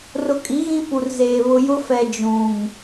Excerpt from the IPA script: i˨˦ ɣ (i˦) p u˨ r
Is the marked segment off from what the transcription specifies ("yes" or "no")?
yes